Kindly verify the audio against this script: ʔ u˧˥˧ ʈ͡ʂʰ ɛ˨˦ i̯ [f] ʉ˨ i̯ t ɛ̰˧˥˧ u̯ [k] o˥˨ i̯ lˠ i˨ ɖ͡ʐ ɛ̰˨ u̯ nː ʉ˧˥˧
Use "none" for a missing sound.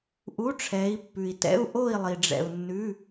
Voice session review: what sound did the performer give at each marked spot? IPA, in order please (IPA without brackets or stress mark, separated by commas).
pː, ʔ